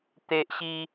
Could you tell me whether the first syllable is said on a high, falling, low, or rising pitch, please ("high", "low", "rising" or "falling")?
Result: high